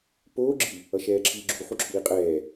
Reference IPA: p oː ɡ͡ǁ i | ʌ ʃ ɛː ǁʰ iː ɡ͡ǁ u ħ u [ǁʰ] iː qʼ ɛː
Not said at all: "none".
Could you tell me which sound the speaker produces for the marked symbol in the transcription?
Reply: ǁʰ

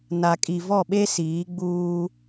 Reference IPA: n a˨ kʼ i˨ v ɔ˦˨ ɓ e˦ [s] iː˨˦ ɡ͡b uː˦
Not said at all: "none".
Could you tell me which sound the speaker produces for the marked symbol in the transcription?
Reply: s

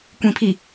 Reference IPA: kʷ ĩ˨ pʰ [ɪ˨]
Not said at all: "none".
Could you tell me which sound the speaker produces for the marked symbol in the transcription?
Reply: i˨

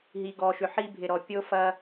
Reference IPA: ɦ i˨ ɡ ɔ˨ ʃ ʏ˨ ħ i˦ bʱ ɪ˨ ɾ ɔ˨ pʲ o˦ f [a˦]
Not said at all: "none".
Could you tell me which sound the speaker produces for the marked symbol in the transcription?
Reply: ɐ˦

